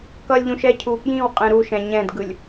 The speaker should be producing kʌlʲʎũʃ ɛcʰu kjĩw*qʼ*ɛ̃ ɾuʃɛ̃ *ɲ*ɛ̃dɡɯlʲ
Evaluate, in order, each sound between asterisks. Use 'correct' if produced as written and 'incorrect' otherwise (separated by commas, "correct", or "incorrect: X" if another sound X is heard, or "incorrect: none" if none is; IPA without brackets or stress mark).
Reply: correct, correct